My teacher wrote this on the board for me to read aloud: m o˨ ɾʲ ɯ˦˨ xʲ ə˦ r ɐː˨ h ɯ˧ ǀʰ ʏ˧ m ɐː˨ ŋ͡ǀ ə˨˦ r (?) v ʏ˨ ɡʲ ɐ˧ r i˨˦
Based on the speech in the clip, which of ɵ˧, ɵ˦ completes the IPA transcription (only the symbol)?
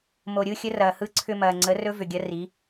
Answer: ɵ˦